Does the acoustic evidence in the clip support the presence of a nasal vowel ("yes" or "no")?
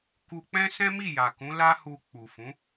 yes